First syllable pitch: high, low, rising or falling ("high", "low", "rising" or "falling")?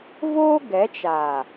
high